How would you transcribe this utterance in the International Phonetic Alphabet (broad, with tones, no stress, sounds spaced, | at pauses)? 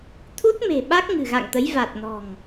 t̪ʰ u˦˥ t̚ m e̤˨˩ ɓ a˦˥ k̚ ŋ ɨ̤˨˩ ɣ a̰˧˨ ŋ t̪ ə˨˦ j v a˨˩ t̚ n ɔ̤˨˩ ŋ